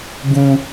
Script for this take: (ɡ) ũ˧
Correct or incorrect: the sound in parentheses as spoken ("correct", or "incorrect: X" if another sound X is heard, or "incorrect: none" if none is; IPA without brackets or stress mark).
correct